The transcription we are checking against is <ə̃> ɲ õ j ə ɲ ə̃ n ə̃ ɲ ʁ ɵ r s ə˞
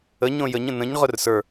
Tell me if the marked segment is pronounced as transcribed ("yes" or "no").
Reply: no